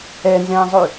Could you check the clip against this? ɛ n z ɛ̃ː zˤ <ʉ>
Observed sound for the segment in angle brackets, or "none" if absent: ʉ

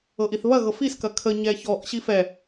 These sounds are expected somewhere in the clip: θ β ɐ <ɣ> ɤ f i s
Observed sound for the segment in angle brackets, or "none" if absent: ɣ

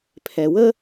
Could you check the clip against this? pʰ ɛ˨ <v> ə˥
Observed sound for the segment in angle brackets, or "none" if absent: w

